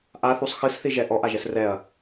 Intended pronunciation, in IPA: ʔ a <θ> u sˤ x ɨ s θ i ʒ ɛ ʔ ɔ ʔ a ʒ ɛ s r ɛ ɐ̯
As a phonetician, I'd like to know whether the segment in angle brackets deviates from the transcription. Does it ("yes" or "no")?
no